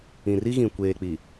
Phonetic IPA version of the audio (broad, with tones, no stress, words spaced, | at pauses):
ĩ˨ri˦ɣĩ˨ kʷeː˨k͡pi˨